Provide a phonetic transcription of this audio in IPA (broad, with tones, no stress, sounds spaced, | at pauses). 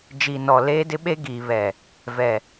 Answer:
d͡ʒ i˨ n ɔ˨ l eː˦ d ɪ˦ ɓ e˦ ɡ iː˨ β ɛ˨ | v ɛ˨